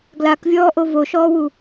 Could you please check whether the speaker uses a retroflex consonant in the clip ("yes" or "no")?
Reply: no